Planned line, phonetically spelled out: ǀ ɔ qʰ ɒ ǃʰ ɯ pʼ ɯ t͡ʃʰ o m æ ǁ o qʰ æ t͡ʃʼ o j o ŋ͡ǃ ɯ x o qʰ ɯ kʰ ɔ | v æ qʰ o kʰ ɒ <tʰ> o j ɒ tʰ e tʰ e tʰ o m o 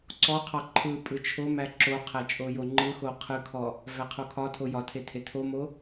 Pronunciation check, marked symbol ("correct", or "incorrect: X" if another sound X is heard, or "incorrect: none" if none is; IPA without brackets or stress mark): correct